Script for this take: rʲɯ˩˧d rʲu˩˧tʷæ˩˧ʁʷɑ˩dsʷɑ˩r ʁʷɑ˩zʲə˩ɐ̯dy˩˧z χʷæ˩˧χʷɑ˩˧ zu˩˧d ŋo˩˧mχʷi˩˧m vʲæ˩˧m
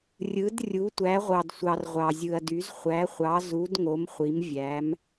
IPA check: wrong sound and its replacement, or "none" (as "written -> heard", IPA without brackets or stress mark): ə˩ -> ɯ˩